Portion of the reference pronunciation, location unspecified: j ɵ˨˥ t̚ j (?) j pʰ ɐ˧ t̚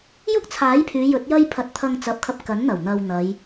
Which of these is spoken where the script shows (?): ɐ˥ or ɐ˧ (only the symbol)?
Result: ɐ˥